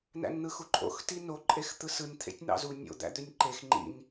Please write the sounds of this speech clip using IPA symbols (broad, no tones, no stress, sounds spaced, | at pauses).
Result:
n æ̰ n n̪ ɯ x u ǃʼ o̰ x t i n o ǃʼ e x t̪ ɯ s ɯ n t̪ʰ ḛ tʲ n̪ ɑ̰ z u nʲ o̰ d̪ æ̰ d̪ ø nʲ ǃ e x ŋ͡ǃ ḭ n